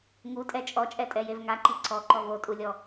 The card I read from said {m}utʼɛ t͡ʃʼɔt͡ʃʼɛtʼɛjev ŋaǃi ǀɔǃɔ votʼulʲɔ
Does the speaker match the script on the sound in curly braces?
no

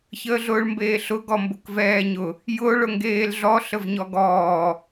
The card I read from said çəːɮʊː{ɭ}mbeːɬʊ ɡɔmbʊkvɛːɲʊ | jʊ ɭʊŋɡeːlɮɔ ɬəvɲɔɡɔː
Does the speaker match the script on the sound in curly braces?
yes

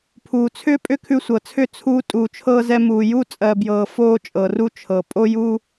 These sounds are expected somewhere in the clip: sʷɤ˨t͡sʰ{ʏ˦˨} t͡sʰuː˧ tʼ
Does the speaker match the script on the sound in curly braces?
yes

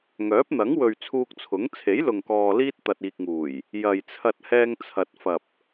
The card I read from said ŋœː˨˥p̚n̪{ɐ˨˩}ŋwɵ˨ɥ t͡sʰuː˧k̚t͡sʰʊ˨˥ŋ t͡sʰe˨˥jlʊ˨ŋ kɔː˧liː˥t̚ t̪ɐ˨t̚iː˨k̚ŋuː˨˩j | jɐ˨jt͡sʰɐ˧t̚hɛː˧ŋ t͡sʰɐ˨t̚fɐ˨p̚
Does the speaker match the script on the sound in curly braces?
no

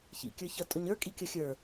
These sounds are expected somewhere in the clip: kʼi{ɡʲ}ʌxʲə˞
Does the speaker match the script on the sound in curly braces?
no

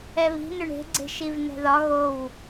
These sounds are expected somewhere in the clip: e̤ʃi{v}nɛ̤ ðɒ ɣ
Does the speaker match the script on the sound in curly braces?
yes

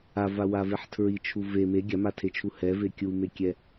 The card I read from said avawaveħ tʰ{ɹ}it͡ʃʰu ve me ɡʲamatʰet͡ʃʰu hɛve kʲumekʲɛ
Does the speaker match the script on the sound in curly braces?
yes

